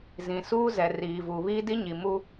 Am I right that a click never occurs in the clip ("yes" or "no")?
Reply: yes